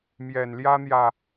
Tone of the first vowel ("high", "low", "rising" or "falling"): low